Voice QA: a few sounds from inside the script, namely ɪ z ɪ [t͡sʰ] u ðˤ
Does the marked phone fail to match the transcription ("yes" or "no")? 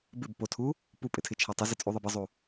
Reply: yes